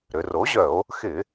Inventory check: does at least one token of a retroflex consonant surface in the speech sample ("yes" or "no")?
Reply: no